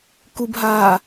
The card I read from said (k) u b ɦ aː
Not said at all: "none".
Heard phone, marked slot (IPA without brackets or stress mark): k